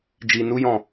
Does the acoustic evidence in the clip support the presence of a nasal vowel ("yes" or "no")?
yes